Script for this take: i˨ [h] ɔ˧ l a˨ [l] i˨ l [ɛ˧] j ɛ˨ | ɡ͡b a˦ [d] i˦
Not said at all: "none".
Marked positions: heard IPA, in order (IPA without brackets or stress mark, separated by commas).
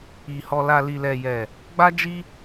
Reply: h, l, ɛ˨, d͡ʒ